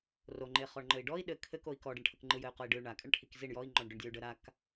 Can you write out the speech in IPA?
r o ŋ͡ǃ e χ ɔ ɳ ŋ͡ǃ ɘ i̯ ɖ ɔ i̯ ɗ ɘ kʰ ɘ k o i̯ k ɔ ɖ ɘ ɳ ʈʰ ə k ŋ͡ǃ ɯ j ɘ y̯ q o i̯ ɖ ɯ y̯ ɳ a kʼ ɘ ɳ ʈʰ i k z i ɳ j ɔ i̯ ŋ͡ǃ ɔ ɳ ɖ ʏ ɳ dʲ ɔ y̯ ɖ ə ɾ a k

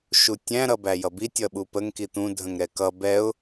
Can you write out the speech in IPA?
ʃ u tʲ æ̃ ɾ ʌ b æ j ʌ b i tʲ ʌ ɓ u p ə ŋ k i t̪ ũ dʱ ə̃ ŋ ɾ ɛ k ʌ b ɛ ʊ̯

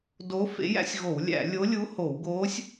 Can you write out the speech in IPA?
d o˧˥ f ḛ˧˥ j æ̰˧˥ sʲ ɣ o˧˩˧ w lʲ æ̰˧˩˧ lʲ o˧˥ lʲ u˧˥ h o˧˩˧ w ɡ oː˧˥ sʲ

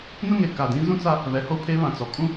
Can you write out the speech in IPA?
n ʊ˦ ŋ e˨ k a˨ d ĩ˨˦ z ũ˦ t͡s a˦ | β ɛ˨ h o˦ pʰ e˦ β ã˨ t͡s ɔ˨ kʼ ũ˦

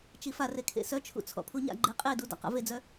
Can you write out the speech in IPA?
t͡ʃ i f a r e kʰ ḛ s œ t͡ʃʰ ṵ t͡sʰ ɔ̰ pʰ u ɲ a̰ ɡ͡ǃ e qʼ e d u d a̰ q a̰ v e d͡z œ

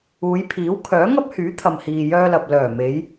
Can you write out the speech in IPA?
uː˨˧ j pʰ iː˨˥ w kʰ œː˨˥ ŋ ɐ˥ p̚ h yː˨˥ t̪ʰ ɐ˨ m h iː˨ j œː˧ l ɐ˨ p̚ l œː˨˩ m e˨˧ j

